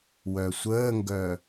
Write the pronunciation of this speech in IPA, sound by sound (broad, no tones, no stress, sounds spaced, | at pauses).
w œ sʷ əː ŋ ɡ œ